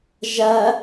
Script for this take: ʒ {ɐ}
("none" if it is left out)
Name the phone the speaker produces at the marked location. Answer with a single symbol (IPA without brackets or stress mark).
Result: ɐ